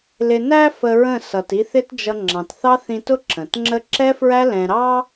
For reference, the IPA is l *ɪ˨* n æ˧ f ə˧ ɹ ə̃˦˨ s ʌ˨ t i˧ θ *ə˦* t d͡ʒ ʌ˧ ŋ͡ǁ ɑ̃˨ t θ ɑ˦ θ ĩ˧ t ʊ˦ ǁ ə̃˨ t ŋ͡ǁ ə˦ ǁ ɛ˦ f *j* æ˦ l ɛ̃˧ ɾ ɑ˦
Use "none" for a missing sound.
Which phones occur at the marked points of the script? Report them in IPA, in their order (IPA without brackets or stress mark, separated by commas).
ɪ˨, ɪ˦, ɹ